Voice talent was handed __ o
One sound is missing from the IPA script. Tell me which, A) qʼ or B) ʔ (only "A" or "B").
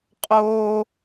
A